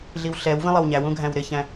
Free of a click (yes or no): yes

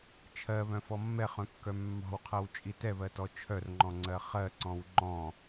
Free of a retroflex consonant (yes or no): yes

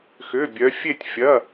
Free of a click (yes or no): yes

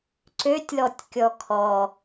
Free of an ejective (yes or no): yes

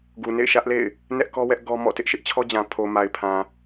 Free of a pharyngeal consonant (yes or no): yes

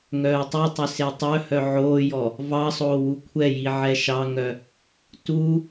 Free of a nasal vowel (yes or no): yes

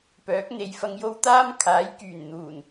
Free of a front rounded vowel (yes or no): no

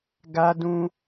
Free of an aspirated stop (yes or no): yes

